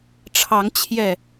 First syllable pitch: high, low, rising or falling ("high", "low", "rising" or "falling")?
rising